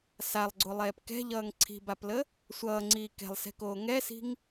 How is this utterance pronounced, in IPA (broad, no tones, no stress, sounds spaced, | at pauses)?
s a lˠ ɡ͡ǀ o lˠ ɛː p k ɛ̤ ʎ ʌː ŋ ǀʰ i̤ b a p l ə | sʷ ʌː ŋ͡ǀ iː k ɛ̤ lˠ s ɛ̤ k oː ŋ ɛ s i̤ ŋ